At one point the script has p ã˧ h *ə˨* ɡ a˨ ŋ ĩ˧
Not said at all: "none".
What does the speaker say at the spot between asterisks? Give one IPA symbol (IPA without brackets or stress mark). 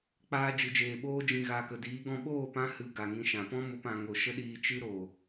ɨ˨